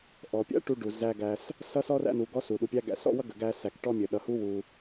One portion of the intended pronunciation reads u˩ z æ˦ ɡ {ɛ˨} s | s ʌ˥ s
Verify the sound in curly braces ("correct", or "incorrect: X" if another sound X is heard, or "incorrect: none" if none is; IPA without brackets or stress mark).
incorrect: æ˨